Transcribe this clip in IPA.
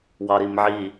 w ɑ ɾ i m ʕ i

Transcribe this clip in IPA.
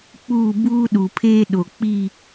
k͡p uː˦˨ b uː˦ ɗ u˨ pʰ eː˦ ɗ o˨ k͡p i˦˨

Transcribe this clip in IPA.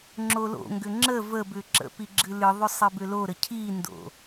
ŋ͡ǁ o l o̰ ŋ ɡ ʏ ŋ͡ǁ ə v ə b ʏ ǁ ə̰ p i ɡ͡ǁ ɨ l ɨ ðˤ ʏ sˤ i b ʏ l o ɾ ə cʰ i n d o̰

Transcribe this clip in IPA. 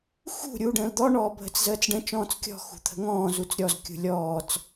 x ṳ ɾʲ uː ɖ ə̃ː l d̪ ɔ ɳ ɔː bʱ ə t͡s z əː t͡s ɖ ə̃ t͡ʃ ɔ̃ː t͡s kʲ ɔ̤ x ṳ t̪ʰ ə̤ ŋ ɔ̃ː z u t͡s ɾʲ ɔ z kʲ ṳ lʲ ɔː t͡s

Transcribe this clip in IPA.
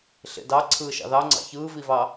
ɬ ḛ d ɑ ǀʰ ɯː ʃ ɑ̰ ð ɑ ŋ͡ǀ ɑ̰ ç ɯː v i v ɑ

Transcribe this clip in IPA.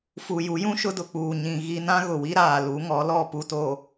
f u˨ j u˨˦ j ũ˦ ʃ ʊ˦ d ʊ˨ k͡p uː˨ ɲ ĩ˨ ɣ i˦ n ã˦ ɣ ʊ˨ w i˦ ɾ aː˨ l u˨˦ ŋ ɔ˨˦ l ɔ˦˨ p u˨ t oː˨

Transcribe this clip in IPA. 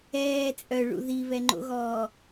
ɛː t͡sʼ œ ɭ ṵ ð i β ɛ ŋ͡ǃ o̰ ɣ ɔː

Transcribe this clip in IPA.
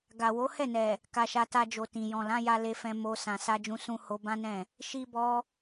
ɡ a˨ w o˨˦ h ɛ˦˨ n ɛ˨ | k a˧ ʃ a˧ t a˧ d͡ʒ o˨ t ĩ˨ j ɔ̃˨ l ã˨˦ j a˧ l e˧ f ɛ̃˧ m o˧ s ã˨ s a˧ d͡ʒ ũ˧ s ũ˦ h o˧ b ã˦ n ɛ̃˦˨ | ʃ i˦ b ɔ˦

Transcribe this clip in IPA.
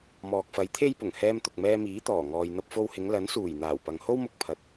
m ɔː˨ k̚ f ɐ˨˥ j t̪ʰ e˥ j p ʊ˨˩ ŋ h ɛː˧ m t̪ ʊ˨ k̚ m ɛː˧ m iː˨˥ t̪ ɔː˨˩ ŋ ɔː˨ j n̪ ɐ˧ p̚ f o˧ w h ɪ˨˧ ŋ l ɐ˨˥ n s uː˨˩ j n̪ aː˨˩ w p ɐ˨ ŋ h o˥ w m ʊ˧ k̚ pʰ ɐ˨ t̚

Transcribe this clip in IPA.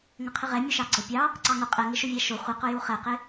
ŋ ə qʰ ɪ ʁ ɛ mʲ ʊ ʃ ɑ ɡ͡ǀ ə pʲ ɑ | ǀ ɑ ŋ ʊ qʼ ɛ ŋ ɪ ʃ ʊ vʲ æ ʃ ʊ χʷ ə q ʊ j u χ ɛ q ɪ

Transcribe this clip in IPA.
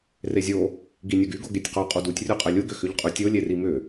r e zʲ o | ɡ i nʲ o ɡ y ɡ o ɡ e tʲ q o qʼ u d u tʲ rʲ u qʼ ɛ lʲ u ɡ ʏ x ʏ ʎ qʼ y tʲ o lʲ e r i m ʏ

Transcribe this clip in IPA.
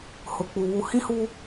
h ʊ˨ k͡p u˨ β u˨ h ĩ˦ h u˦

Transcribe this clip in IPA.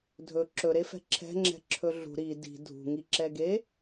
dʱ ɵ ǁ ɵ ɾ e f ɛ̤ ǁʰ ɛ̤ ŋ͡ǁ ɛ̤ ǁʰ ɵ ɮ ṳ ɾ i d i̤ dʱ ṳ ŋ i ǁ ɛ ɡ e

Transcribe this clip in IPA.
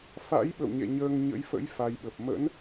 f a̰˧˥ j ɓ ə̰˧˨ w ɲ ɛ̰˧˨ ɲ əː˧ ŋ ɲ ə̰˧˥ j f ə̰˧˥ j f a˧ j ɓ ə˨˩ p̚ m ə̰˧˥ n

